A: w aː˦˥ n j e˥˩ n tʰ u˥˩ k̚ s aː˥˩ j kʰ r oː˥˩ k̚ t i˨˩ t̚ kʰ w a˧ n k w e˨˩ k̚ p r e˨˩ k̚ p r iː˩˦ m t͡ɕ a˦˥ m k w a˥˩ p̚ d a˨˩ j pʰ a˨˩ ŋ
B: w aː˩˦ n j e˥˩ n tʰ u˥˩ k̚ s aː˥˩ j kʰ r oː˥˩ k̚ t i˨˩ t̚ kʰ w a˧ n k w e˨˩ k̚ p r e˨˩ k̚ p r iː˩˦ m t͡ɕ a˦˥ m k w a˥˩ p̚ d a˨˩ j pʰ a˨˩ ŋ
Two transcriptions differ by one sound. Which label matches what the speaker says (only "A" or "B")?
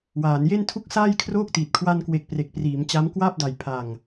B